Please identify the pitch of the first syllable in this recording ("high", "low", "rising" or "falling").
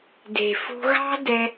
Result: low